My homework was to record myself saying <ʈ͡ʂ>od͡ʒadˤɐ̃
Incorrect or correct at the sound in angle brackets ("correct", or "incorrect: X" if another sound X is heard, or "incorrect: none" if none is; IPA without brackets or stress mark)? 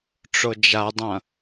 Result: correct